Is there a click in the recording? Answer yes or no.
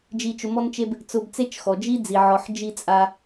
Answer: no